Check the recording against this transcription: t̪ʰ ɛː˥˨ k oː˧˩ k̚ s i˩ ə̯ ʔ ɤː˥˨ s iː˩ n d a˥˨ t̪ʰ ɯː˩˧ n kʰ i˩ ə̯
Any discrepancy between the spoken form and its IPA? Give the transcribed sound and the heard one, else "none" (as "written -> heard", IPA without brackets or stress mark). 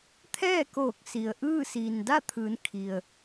ɤː˥˨ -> ɯː˥˨